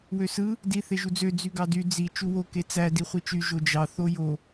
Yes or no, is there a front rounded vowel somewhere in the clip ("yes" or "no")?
yes